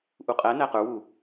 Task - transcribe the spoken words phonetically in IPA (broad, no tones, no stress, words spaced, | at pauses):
ʔuqʼænæ qə˞wu